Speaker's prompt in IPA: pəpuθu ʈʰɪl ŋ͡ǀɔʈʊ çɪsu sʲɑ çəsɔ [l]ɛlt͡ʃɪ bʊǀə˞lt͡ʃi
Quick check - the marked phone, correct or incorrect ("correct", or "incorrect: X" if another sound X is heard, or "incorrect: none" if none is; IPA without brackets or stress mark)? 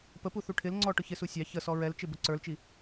incorrect: ɹ